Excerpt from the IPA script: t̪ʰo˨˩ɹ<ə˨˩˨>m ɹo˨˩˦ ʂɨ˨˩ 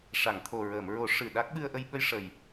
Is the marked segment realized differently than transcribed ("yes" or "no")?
yes